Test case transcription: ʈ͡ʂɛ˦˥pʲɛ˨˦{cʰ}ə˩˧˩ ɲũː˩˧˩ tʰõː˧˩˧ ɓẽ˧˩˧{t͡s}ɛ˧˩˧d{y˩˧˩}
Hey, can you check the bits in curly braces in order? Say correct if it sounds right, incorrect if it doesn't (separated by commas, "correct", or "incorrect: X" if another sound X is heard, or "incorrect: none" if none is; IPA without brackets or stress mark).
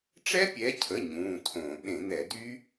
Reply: correct, incorrect: n̪, incorrect: y˦˥